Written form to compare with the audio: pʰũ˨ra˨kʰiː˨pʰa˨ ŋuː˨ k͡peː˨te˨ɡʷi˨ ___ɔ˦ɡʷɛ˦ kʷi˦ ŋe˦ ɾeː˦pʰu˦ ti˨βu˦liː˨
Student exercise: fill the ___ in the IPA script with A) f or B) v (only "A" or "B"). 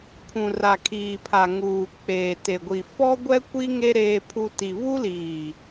A